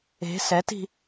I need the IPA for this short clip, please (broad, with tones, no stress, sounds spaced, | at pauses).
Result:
e̤˨˦ s ɛ˨˦ t i̤˧